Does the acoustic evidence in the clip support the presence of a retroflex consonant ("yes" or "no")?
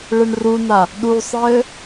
yes